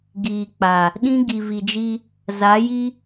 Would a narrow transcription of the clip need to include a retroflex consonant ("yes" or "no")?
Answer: no